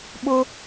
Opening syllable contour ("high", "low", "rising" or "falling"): high